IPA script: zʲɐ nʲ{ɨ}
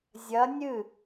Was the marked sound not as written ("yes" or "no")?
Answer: no